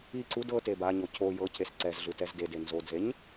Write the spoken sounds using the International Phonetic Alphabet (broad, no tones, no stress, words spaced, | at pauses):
i ǀud ɤ tebaɲo cʰo jɤcʰes ǀɛzɮɯ tɛzdede nzodzeɲ